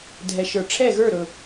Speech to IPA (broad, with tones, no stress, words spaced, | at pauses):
dʱɛ˨ ʃə˞˨ ʈ͡ʂʰɛ˦˨ɣə˞˦˨ɾɵ˨